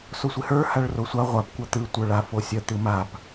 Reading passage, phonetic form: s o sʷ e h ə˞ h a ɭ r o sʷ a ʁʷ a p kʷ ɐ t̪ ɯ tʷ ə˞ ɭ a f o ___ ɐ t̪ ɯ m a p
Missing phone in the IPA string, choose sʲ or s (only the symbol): sʲ